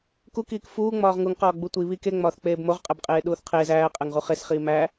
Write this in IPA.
k u k iː k f uː ŋ͡m ɒː ʁ ŋ u ŋ q ɒː ɡ͡b u tʷ i β i k e ŋ͡m ɒː θ k͡p eː b m o ʁ qʼ æ b qʼ eː ɗ uː θ qʰ eː z æː qʼ æ ŋ ʁ u χ e s χ iː m æ

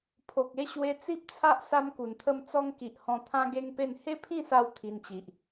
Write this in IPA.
pʰ o˨ k̚ e˥˧ ɕ w e˧ t͡s i˦ p̚ t͡sʰ a˦ ʔ s a˦ m k u˨˩ n t̪ʰ ə˥˧ m t͡s ɔ˦ ŋ k i˨ ʔ h ɔ̃˧ t̪ʰ ã˦ ɡ e˦ ŋ p e˥˧ n h e˦ pʰ ĩ˥˧ s a˧ w t̪ʰ i˧ n t͡ɕ i˨ ʔ

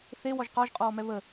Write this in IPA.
θ e w ɔ ʒ q ɔ ʒ qʼ ɔː m ɛ β ə

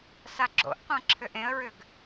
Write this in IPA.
s a ɡ͡ǁ o̰ ʔ qʷ ã ǁʰ ʏ ʔ ẽ ə̯ ɹ ʏ ɡ

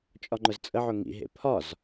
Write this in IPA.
t͡ʃʼ ɒ ŋ͡ǃ ʊ z t͡sʼ ə ʕ ʊ ŋ ḭ ɦ ḛ pʰ ɒ z

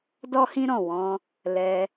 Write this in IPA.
d ɔ˦ h ĩ˦ ɾ ɔ̃˦˨ w ɔ̃˧ | l ɛ˧

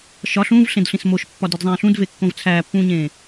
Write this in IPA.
ʃ ɒ ɬ ũː v ɬ ẽ d ɬ ĩ s m o ʃ pː ɒ d e d zˤ ẽː ɬ ũ d v e kː õ v t͡sʰ æː pː ũː ɲ ẽː

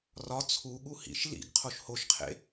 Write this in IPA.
r ɒ t͡sʰ u ɠ u h ḭ ʃ l ḭ ɡ qʰ o ʃ h o ʃ qʰ ḛ

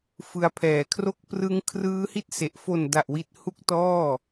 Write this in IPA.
f ɯ˧ a̯ pʰ ɛː˨˩ kʰ r o˦˥ k̚ p r ɯ˦˥ ŋ kʰ r ɯː˦˥ h i˥˩ t̚ s e˨˩ ʔ f o˨˩ n d a˨˩ ʔ w i˨˩ t̚ h u˦˥ k̚ t ɔː˥˩

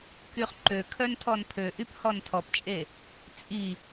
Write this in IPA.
k y χ ǃ ø kʰ œ n tʰ ɔ n pʰ ø ʔ y p h ɔ n tʰ ɔ p t͡ʃʼ e | t͡sʼ i

